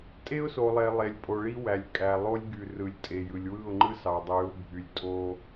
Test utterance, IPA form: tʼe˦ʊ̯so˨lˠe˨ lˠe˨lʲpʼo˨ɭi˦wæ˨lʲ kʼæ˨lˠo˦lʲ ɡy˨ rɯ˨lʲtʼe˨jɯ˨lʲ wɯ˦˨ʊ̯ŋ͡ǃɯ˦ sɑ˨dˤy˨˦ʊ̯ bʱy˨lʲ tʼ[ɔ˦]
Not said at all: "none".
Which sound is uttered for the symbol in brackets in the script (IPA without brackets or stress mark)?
o˦